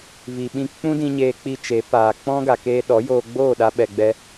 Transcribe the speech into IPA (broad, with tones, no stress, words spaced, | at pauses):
vi˨ɓĩ˧ k͡pũ˦dĩ˧ ɲeː˧k͡pi˧t͡ʃe˨˦paː˨ k͡pɔ̃˦ɡa˨keː˧ ɗɔ˨˦joː˧ɡ͡boː˦˨ ɗa˦ɓɛ˧ɡ͡bɛ˦